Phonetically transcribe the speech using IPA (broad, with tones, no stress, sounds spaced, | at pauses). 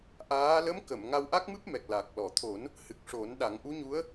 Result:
ʔ aː˧˥ l ə˧˥ m k ə˨˩˨ m ŋ a˧ w ʔ a˦˥ k̚ m ɨ˦˥ p̚ m ɛ˨˩ k̚ l a˨˩ k̚ l ɔ˨˩˨ t̪ʰ o˨˩˦ n | h ɨ˨˩ k̚ ʂ o˨˩˦ n ɗ a˨˩˦ ŋ ʔ u˧˥ ɲ u˧˥ ə̯